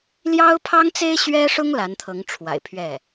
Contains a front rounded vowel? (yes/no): no